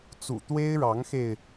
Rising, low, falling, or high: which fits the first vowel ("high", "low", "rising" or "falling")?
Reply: low